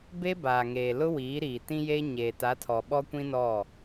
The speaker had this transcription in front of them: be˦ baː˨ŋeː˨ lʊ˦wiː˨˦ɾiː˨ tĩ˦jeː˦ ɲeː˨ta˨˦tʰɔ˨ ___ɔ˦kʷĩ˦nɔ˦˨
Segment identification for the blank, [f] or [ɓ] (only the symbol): ɓ